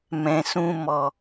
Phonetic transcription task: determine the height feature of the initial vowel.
mid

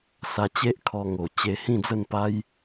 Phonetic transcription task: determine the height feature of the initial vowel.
low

